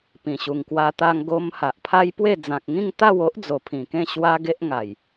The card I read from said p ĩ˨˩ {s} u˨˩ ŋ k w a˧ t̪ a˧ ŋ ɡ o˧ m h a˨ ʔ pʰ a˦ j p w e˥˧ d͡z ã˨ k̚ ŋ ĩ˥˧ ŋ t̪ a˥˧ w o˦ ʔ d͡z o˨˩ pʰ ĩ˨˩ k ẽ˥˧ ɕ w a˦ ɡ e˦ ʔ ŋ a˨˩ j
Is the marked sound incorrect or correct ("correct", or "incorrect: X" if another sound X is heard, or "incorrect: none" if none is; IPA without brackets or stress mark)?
incorrect: ɕ